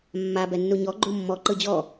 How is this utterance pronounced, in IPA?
mː a b ɛ nː u ɲ ɔ ɡ͡ǃ u mː ɔ ǃ ɯ d͡ʑ ɔ

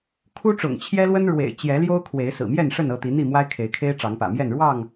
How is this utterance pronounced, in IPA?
kʰ u˦ ʈ͡ʂ ʊ̰˨˩ ŋ t͡ɕʰ j ɛ˦ l w ə˦ n ɻ w ḛ˨˩ ɪ̯ t͡ɕ j ɛ˨˦ l j o˦ ʊ̯ kʰ w e˨˦ ɪ̯ s ɹ̩˨˩ m j ɛ˥˨ n ʂ ə˥˨ n ɤ˥˨ t̪ i˨˦ n̪ i˥˨ m w a˦ ɪ̯ kʰ e˨˦ ɪ̯ kʰ e˦ ɪ̯ ʈ͡ʂ ɑ˨˦ ŋ p ä̰˨˩ m j ɛ˥˨ n ɻ w ɑ˥˨ ŋ

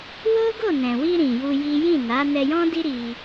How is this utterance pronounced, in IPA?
w o˦ ɡ o˦˨ n ɛ̃˨ w i˧ ɾ ĩ˨ j u˧ j i˦ j ĩ˦˨ n a˨˦ n ɛ˧ j ɔ̃˦ d i˦ ɾ i˧

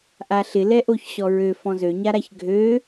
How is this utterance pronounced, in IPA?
ʔ a ɬ ɪ l ɛ ʔ o ç ɕ ɔ ɹ ø f ɔ̃ z ø ɲ a ɾ a ç ɡʱ ø

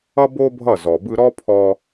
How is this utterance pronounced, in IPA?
ʌ˦ b o˦ bʱ ʌ˦˨ z ɔ˨ b ɯ˧ ɾ ɔ˦ pʰ ɔ˧

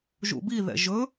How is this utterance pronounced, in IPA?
ʒ ṵ b i ð ɛ̰ ʒ ɵ

